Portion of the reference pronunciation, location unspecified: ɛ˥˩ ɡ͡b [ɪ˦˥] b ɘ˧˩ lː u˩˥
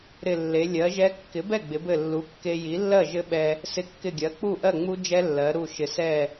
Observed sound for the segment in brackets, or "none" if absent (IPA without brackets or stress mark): ɪ˩˧